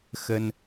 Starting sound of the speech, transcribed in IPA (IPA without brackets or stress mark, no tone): x